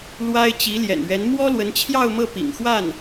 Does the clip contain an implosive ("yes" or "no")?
no